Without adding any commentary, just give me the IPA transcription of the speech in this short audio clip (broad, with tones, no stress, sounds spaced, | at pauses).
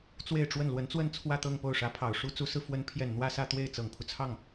t͡s w e˥˧ ɪ̯ ʈ͡ʂ w ə˥˩ n l w ə˧˥ n t͡s w ə˥˧ n t͡sʰ w ä˥˧ t̪ ɤ˥˧ ŋ p o˥˩ ʊ̯ ʂ ä˧˥ pʰ ɑ˨˩ ʊ̯ ʂ u˥ t͡s u˧˥ s ɹ̩˧ f w ə˧˥ n pʰ j ɛ˨˩ n n̪ w ä˥˧ s ä˥˧ t̪ w e˥˩ ɪ̯ t͡s ɤ˨˩ ŋ pʰ u˦ t͡sʰ ɑ˥˩ ŋ